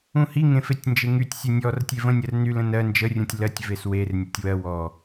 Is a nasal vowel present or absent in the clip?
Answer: present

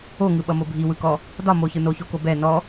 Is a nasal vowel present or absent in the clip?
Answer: absent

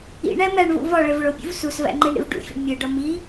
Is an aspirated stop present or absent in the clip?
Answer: absent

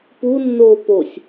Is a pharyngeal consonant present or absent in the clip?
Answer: absent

